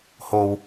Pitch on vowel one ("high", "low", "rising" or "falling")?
low